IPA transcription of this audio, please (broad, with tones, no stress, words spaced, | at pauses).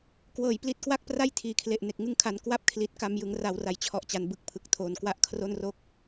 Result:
kwɤː˨˩j pli˦˥t̚kwa˥˩k̚ pra˥˩jtʰiː˨˩kʰle˨˩ʔ ne˨˩k̚ŋɯ˧ŋkʰa˩˦n kwa˥˩p̚kʰli˨˩t̚ka˧mjɯ˩˦ŋ ra˩˦w ra˩˦jt͡ɕʰɔ˨˩ʔt͡ɕa˩˦n bɯ˨˩k̚pʰɯ˨˩k̚tʰoː˨˩n kwa˦˥ʔkʰro˥˩nro˥˩k̚